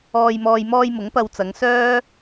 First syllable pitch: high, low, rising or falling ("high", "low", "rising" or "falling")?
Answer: low